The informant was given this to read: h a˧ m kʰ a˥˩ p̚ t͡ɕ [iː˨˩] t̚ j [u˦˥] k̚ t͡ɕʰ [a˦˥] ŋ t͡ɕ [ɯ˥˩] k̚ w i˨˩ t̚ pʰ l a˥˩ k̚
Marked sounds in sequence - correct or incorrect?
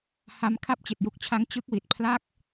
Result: incorrect, correct, correct, incorrect

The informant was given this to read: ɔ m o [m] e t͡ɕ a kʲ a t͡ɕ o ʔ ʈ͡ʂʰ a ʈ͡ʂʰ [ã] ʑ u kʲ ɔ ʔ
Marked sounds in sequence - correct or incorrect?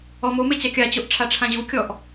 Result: correct, correct

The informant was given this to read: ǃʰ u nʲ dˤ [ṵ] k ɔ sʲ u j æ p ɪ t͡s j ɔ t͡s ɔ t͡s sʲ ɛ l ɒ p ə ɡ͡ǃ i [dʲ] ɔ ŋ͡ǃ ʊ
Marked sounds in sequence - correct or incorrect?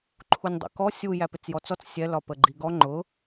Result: correct, incorrect

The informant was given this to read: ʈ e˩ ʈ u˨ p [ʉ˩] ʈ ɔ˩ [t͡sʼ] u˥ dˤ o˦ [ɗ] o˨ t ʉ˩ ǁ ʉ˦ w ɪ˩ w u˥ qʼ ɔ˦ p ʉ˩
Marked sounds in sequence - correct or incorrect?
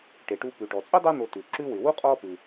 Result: correct, correct, incorrect

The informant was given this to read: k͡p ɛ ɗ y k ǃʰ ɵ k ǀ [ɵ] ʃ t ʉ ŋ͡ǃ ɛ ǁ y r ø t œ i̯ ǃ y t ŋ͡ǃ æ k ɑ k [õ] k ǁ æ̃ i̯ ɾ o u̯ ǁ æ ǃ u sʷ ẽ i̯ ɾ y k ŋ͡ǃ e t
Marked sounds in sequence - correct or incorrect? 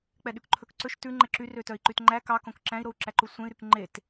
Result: correct, correct

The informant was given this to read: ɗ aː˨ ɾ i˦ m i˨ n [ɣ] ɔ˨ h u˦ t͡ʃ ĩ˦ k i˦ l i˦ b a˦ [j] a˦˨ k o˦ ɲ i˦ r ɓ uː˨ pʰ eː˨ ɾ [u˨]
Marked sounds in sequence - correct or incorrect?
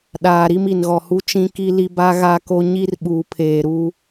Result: correct, incorrect, incorrect

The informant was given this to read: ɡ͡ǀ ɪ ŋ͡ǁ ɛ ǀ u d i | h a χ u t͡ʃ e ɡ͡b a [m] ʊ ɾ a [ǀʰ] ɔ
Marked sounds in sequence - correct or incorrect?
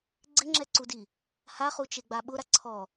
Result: incorrect, correct

